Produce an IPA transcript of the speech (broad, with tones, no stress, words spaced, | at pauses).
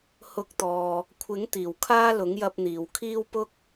hʊ˧k̚t̪ɔː˨ | kʷʰɪ˨˥ŋ t̪iː˨˩wkʰaː˥lʊ˨˥ŋjɐ˧p̚ n̪iː˨wkʰiː˥w pʊ˥k̚